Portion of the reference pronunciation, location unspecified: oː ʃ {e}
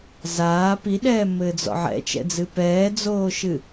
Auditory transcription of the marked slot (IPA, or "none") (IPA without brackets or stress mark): ɨ